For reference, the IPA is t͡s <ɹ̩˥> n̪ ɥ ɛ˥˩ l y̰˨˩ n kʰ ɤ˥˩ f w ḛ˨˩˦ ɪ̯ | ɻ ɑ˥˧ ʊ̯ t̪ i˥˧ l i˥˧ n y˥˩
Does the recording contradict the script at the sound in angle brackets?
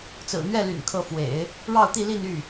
yes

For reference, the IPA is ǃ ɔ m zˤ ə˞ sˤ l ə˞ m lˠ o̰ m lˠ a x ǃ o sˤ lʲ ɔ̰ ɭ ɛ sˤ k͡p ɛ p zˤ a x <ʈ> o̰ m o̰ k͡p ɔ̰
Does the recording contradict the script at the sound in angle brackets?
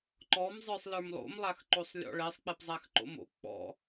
yes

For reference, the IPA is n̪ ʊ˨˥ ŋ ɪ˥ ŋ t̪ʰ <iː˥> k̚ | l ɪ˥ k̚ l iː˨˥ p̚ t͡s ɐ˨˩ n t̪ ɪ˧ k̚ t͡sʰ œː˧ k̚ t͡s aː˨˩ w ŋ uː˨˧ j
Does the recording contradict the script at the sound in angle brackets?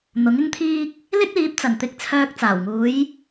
no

